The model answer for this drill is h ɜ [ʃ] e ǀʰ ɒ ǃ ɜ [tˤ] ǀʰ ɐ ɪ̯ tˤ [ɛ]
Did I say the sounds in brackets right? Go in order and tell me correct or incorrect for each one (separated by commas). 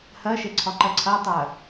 correct, incorrect, incorrect